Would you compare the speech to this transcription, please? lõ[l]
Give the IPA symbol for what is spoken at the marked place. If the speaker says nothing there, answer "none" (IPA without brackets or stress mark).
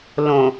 none